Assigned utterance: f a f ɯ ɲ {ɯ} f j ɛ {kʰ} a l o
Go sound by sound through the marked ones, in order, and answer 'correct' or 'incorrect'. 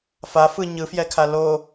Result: correct, correct

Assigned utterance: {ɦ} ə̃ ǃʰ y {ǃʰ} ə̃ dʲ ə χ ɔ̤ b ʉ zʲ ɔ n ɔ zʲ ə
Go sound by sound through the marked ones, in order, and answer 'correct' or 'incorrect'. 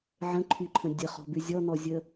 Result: incorrect, correct

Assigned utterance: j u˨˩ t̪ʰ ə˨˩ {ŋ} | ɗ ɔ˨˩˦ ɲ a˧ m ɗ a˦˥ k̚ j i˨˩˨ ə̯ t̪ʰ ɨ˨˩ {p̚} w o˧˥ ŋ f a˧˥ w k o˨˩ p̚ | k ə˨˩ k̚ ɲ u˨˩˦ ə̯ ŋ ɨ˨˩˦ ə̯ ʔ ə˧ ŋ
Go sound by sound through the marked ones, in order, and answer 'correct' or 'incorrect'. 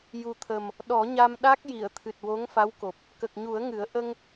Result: incorrect, incorrect

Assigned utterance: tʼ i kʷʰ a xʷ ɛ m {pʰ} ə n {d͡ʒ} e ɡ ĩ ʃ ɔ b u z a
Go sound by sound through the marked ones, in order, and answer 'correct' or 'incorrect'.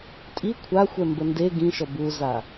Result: incorrect, incorrect

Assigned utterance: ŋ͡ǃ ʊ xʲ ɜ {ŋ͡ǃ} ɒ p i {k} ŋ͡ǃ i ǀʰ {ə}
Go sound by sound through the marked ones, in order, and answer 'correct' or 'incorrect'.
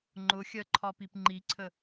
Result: incorrect, incorrect, correct

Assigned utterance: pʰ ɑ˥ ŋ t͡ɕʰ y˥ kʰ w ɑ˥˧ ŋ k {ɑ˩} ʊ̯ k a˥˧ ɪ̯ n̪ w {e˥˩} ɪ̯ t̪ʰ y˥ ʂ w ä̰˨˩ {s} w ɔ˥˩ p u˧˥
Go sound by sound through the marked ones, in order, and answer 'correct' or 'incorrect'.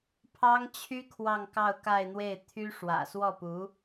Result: incorrect, correct, correct

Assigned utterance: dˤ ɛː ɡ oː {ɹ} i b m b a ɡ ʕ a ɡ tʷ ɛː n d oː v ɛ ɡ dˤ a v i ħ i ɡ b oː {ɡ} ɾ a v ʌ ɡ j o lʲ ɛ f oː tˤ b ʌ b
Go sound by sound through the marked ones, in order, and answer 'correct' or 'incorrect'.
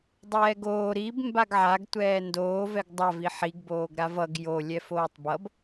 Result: incorrect, correct

